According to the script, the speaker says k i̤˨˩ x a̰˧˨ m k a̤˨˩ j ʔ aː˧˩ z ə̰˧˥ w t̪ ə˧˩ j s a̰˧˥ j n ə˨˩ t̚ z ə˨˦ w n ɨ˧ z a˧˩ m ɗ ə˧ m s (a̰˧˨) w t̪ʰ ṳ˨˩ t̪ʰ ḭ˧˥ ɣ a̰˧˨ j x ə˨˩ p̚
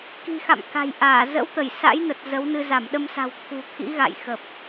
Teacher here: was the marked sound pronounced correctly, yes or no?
no